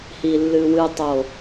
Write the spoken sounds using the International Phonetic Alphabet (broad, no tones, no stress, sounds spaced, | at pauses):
h i lː ɨ w ɨ tˤ o